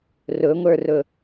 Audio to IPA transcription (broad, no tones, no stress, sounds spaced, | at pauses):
r ʊ ŋʷ ə˞ r ʊ